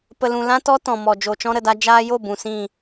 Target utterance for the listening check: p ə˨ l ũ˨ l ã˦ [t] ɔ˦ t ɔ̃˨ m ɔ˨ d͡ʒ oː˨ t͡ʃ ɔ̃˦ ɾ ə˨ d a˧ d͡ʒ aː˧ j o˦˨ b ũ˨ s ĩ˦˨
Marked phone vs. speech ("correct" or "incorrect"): correct